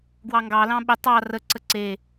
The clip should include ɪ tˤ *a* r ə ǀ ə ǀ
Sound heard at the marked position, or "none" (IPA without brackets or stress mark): ɑ